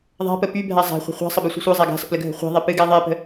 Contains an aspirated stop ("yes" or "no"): no